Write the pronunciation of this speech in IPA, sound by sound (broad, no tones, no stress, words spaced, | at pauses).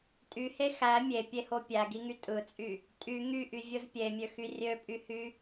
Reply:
tʼyhe xæ mʲepʲeho pʲæɡiŋy tʼɯt͡sʼy | tʼy ŋyʔyvʲɯz pʲemʲøxy rʲøpʼyhy